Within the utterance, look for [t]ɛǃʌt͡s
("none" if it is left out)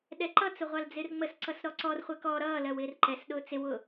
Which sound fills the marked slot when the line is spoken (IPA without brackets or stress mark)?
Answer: ɗ